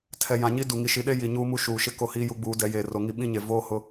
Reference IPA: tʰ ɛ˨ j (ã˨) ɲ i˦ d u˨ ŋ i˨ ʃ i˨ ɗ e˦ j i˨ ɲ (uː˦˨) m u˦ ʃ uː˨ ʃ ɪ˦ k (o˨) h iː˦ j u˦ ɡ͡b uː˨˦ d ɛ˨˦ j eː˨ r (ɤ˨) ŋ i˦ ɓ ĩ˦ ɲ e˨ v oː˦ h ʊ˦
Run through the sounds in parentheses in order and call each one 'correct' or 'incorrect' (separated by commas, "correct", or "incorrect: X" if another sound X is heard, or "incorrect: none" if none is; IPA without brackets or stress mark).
correct, incorrect: uː˦, incorrect: o˦, incorrect: o˨